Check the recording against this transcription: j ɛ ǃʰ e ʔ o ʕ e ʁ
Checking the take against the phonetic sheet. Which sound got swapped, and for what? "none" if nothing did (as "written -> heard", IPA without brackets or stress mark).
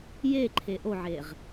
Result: ɛ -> e